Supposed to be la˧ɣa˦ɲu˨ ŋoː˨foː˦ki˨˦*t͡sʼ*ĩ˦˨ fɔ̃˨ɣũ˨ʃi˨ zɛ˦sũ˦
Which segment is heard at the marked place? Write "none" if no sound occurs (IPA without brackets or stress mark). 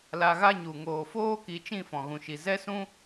t͡ʃ